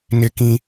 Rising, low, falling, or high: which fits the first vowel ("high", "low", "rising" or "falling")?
high